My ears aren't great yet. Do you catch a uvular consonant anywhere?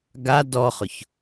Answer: yes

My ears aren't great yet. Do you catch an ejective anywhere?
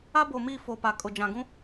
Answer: yes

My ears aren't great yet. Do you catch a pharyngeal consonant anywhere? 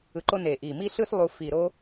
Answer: no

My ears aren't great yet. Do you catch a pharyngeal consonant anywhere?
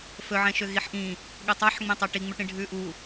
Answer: yes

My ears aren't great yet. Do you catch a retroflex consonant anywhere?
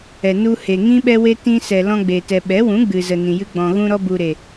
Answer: no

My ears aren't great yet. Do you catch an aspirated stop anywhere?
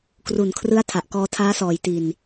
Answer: yes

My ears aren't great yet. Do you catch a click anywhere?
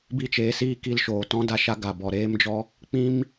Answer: no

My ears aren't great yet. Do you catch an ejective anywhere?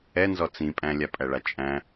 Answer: yes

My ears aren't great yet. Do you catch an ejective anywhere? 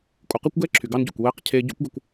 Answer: yes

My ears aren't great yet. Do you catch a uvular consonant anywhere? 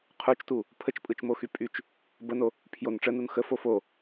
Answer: yes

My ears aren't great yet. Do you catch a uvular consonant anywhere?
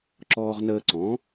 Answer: yes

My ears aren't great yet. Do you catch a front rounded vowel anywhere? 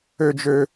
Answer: yes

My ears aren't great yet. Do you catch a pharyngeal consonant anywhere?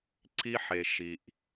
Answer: yes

